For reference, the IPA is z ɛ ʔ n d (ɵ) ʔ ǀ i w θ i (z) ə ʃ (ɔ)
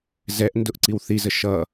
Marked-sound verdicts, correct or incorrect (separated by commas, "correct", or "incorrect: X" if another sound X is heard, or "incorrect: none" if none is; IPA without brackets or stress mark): incorrect: ʊ, correct, incorrect: ʌ